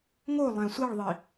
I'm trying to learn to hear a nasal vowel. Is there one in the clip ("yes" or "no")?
yes